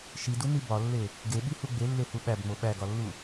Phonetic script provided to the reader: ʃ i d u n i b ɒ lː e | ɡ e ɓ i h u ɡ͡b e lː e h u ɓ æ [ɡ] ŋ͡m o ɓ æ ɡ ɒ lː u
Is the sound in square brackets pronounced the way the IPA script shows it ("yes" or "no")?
no